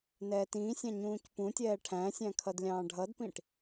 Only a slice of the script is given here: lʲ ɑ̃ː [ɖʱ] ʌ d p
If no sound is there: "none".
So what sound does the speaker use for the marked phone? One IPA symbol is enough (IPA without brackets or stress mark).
ɖʱ